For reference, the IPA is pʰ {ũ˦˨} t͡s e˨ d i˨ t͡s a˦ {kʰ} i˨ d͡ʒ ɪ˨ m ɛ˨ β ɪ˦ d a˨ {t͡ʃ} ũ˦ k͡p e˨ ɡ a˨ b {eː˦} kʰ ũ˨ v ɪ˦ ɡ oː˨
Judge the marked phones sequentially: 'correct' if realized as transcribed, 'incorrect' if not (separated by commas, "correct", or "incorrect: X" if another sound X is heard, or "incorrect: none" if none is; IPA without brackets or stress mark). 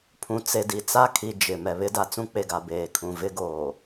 incorrect: ũ˨, correct, incorrect: t͡s, incorrect: eː˨